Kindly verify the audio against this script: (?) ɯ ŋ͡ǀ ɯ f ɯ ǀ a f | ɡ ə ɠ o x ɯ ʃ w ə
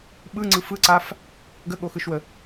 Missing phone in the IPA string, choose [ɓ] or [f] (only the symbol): ɓ